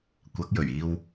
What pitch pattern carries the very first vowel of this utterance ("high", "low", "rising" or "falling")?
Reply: rising